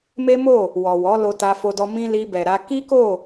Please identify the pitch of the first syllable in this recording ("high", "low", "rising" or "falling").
high